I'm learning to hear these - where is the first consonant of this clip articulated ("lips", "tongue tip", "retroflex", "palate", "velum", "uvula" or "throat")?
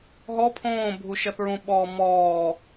throat